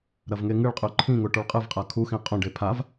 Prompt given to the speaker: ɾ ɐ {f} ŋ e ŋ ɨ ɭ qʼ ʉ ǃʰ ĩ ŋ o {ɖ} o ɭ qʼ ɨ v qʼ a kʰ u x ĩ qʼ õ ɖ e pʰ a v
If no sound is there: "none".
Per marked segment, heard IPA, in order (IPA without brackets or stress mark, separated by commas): v, ʈ